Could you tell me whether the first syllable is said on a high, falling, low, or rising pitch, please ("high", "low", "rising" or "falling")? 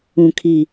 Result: low